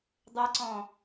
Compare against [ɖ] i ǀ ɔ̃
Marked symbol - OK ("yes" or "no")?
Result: no